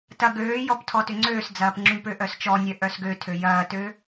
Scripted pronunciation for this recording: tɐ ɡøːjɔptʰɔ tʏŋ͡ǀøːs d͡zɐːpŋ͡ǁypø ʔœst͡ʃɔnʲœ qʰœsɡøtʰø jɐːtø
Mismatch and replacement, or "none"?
qʰ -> ʔ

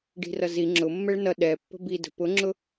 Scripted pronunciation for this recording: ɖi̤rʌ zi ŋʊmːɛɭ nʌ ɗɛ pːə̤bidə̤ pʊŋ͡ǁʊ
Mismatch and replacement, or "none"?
ŋ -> ŋ͡ǁ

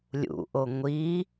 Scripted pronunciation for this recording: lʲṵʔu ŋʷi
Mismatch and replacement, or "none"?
u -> o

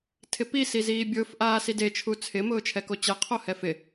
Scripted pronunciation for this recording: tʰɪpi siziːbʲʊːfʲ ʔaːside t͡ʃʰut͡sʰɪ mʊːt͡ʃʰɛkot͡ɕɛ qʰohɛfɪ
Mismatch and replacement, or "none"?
fʲ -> f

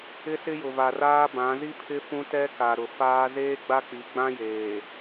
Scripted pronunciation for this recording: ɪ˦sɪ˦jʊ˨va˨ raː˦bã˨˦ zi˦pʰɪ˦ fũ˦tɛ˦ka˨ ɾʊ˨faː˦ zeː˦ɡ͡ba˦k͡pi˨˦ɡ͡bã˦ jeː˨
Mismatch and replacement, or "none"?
none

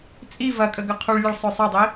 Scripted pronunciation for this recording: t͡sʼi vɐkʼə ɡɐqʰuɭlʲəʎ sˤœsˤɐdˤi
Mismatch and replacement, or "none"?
ʎ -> ɭ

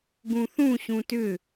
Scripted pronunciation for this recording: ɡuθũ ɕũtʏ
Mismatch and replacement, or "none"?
u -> ũ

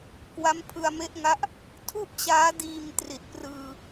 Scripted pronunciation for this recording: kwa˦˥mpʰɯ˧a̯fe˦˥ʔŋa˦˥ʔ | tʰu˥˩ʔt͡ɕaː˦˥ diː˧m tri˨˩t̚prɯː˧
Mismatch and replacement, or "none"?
f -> m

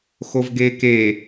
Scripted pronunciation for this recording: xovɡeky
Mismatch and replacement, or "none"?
y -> e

